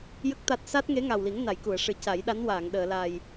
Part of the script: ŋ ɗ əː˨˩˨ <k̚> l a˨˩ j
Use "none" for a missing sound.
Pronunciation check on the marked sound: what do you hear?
none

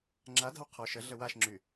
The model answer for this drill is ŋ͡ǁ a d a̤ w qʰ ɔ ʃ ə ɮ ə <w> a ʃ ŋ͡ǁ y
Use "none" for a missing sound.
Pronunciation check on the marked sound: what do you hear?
w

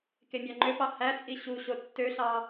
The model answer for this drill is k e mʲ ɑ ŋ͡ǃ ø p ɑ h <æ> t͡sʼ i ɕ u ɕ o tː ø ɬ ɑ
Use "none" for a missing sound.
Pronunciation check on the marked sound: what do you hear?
æ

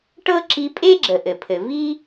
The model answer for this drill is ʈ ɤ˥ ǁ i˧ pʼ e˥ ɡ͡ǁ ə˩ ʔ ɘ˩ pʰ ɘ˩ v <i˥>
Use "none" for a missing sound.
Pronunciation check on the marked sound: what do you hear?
i˥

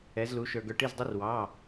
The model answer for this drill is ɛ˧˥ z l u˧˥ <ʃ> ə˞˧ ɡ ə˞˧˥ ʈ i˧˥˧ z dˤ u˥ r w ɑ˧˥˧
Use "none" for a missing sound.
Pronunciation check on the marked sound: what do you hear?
ʃ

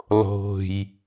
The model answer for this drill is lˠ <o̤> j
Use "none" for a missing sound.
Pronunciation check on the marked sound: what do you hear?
o̤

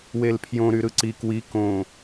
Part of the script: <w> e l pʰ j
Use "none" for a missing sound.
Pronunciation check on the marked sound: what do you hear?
w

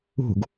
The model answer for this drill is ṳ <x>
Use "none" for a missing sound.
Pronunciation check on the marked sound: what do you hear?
ɡ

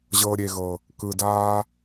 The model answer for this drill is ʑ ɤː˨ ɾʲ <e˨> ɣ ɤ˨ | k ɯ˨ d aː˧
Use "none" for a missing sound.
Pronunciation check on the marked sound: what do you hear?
e˨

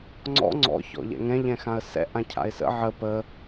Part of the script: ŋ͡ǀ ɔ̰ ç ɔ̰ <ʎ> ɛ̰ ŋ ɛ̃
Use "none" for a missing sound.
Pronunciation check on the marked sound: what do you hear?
ʎ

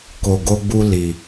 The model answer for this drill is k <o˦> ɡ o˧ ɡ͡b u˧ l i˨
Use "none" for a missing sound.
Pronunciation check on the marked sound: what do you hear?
o˨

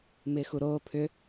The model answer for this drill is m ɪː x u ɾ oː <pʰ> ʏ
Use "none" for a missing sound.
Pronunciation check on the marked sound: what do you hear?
pʰ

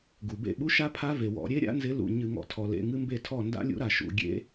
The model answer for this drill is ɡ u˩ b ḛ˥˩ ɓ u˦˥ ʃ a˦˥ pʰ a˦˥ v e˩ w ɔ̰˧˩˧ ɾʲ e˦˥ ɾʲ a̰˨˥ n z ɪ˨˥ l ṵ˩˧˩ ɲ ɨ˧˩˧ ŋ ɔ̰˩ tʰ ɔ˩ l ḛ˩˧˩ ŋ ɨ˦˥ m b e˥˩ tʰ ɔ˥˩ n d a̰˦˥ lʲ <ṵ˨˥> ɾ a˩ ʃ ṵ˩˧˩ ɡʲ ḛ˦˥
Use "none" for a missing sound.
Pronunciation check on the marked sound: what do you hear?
ṵ˨˥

